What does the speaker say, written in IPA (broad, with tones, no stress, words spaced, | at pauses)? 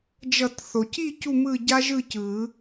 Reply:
d͡ʒʌ˨˩˦tθo˩ci˦˨ cu˦˨mɯ˦˨ɟa˦ʒɯ˦˨ cɯ˨˩˦